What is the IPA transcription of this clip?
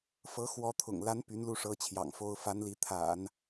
fɤ˧˥xwɔ˧˥t̪ʰʊ̰˨˩ŋla˧˥n py˧˥nlu˥˩ʂɤ˧˥ t͡ɕʰjɑ̰˨˩ŋfo˥ʊ̯ fa˧˥nli˧˥ t̪ʰa̰˨˩˦n

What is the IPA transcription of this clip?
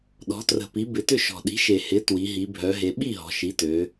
ɗɔ̤˩˥trə̤˨˩pi˩˥ bɪ˨˩tʏ˥˩ʃɔ̤˨˩ ɗi̤˩˥ʃe˨˩hɪ˩˥ twi˩˧ɦi˩˧ bʱœ˩˧ɦe˩˧ɓi˥˩ ɦɔ̤˩˧ʃi˩˥tø˩˧

